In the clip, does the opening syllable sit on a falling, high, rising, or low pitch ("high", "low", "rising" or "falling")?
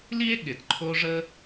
high